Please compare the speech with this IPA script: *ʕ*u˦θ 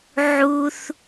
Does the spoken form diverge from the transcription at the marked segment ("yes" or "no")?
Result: no